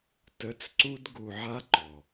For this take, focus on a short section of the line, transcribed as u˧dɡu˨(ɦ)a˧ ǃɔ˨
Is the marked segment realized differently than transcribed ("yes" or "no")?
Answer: yes